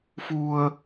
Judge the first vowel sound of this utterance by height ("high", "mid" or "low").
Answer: high